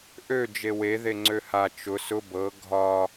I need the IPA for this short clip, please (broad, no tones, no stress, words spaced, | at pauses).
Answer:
ʔø d͡ʒewe ðeŋ͡ǀøha t͡ʃʊ sʊ bɤ ɡʱɒ